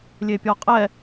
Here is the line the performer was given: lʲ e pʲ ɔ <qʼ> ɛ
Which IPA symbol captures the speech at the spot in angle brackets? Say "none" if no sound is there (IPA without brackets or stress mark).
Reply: qʼ